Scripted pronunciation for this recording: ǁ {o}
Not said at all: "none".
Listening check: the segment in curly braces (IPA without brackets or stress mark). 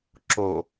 o